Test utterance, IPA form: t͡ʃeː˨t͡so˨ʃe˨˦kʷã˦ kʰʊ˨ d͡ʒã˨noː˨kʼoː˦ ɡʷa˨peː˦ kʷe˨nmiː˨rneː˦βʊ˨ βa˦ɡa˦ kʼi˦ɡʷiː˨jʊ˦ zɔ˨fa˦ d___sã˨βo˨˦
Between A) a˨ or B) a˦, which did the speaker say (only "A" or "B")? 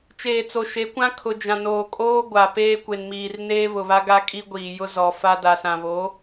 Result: A